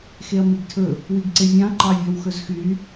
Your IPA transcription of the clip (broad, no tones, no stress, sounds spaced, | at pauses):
x e ɐ̯ m i ɡ tʰ ɵ | w i ɡ ǀ e vʲ ɑ̃ ɐ̯ ǃ ɑ vʲ ɔ w x ɵ z x y